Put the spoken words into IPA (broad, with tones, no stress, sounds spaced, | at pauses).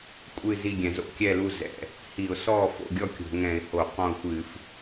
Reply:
kʷʼ ɨ˥˨ z i˥˨ ɡʲ ɛ̃˧˩˧ z o̰˥˨ kʲ ɛ˥˨ l u˥˨ z ɛ̰˩˧˩ | h i˧˩˧ ʊ̯ s ɔː˥˨ f o̰˥˨ ɡʲ ɔ˥˨ kʲ o̤˧˩˧ ŋ ɛ̃˧˩˧ ɪ̯ h o˧˩˧ q ɔ̃˥˨ ʊ̯ xʷ ɨː˧˩˧ f